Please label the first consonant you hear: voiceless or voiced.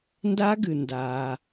voiced